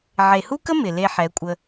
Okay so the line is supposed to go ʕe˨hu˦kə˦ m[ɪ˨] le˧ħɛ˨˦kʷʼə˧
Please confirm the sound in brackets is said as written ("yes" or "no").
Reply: yes